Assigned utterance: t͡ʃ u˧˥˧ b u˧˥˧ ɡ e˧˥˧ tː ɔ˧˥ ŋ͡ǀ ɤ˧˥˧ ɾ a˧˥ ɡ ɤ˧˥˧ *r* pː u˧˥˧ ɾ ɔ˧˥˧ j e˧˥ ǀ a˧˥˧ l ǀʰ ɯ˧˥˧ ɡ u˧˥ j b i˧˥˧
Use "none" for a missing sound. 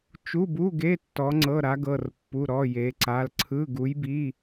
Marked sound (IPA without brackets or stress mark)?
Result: r